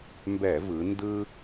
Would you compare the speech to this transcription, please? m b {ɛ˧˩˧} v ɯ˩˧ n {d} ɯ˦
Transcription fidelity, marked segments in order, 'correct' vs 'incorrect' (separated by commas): correct, correct